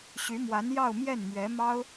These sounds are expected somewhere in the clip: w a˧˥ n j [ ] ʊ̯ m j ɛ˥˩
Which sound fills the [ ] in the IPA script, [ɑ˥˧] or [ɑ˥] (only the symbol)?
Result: ɑ˥˧